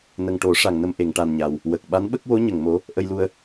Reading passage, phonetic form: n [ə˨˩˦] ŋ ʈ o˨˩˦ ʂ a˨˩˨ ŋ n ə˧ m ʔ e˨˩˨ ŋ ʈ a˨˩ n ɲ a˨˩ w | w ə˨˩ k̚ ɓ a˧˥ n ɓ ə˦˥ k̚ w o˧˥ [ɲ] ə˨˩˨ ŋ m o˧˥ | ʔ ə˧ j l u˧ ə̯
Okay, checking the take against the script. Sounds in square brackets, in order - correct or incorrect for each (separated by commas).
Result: incorrect, correct